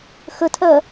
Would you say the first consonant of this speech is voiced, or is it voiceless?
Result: voiceless